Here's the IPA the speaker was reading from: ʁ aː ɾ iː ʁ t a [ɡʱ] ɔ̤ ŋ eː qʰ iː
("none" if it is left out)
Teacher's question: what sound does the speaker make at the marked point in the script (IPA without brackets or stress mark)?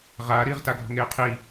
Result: ɡʱ